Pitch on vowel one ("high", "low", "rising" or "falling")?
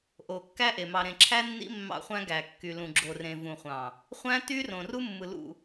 low